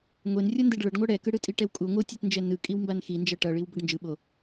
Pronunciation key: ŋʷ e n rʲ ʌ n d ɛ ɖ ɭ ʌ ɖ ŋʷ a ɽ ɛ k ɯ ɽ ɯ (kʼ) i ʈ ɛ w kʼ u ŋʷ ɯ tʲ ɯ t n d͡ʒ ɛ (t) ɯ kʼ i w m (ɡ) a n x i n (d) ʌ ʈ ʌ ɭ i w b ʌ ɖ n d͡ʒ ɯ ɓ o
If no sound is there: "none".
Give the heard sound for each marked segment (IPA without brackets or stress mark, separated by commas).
tʼ, n, b, d͡ʒ